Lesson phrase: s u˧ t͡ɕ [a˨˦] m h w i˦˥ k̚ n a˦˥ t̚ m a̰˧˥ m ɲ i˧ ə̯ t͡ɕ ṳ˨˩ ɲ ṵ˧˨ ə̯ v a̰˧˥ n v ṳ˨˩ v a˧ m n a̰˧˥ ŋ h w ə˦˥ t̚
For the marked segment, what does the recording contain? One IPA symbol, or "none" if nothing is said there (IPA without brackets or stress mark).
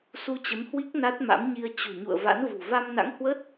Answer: ə˨˦